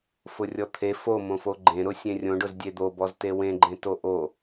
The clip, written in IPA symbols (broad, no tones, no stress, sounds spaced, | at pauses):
f ʊ rʲ ɔ t̪ʰ e f o m õ f o ɡ͡ǃ ẽ ɾ ʊ sʲ ẽ rʲ õ ɖ ʊ z dʲ e d̪ o b ɔ z t e w ẽ ɡ͡ǃ ẽ t o ʔ o